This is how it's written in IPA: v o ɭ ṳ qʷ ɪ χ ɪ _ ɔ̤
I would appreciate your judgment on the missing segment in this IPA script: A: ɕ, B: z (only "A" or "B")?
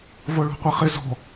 B